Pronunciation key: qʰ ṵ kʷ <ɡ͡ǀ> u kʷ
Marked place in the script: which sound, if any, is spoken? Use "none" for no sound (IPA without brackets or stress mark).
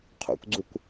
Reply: ɡ͡ǀ